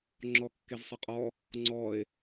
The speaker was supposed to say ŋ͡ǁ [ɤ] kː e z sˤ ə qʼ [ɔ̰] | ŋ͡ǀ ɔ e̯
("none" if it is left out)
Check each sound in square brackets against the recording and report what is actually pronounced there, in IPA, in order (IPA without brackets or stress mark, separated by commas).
ɔ, ɔ